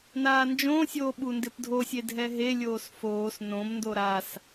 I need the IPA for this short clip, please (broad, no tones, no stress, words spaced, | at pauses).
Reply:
naːnd͡ʒõːsʲoː ɓundɪpdʱosʲe dʱɛɦelʲoːs foːs nõmndo ɾas